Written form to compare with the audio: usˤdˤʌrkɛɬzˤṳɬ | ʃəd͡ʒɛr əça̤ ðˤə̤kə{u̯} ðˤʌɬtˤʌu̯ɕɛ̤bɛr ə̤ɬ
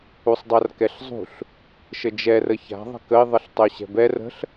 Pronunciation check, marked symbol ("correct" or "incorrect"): incorrect